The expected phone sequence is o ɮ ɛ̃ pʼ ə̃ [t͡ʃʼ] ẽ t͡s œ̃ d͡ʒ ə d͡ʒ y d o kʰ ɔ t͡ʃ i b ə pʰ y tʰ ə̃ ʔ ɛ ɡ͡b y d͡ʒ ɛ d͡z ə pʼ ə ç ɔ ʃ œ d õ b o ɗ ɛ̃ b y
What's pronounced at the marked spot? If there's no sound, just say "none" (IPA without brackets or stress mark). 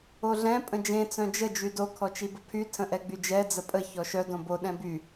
d͡ʒ